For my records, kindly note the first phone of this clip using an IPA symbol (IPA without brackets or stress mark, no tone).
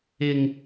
ɪ